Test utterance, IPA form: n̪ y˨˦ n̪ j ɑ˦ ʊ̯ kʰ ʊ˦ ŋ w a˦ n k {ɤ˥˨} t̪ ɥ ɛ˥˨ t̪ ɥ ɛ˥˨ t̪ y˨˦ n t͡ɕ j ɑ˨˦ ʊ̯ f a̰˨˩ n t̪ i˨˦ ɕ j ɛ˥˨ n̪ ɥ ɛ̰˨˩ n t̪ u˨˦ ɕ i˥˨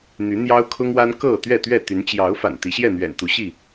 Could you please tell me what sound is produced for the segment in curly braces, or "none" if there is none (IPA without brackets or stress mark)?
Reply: ɤ˥˨